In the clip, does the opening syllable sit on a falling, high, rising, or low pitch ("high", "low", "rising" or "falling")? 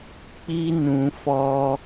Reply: high